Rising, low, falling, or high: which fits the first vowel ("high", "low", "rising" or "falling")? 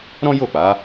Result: high